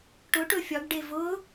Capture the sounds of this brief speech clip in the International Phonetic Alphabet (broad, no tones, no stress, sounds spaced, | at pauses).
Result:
ʈ ʊ ʈ ɵ fʲ ɒ ɡ ɖ e v ʊ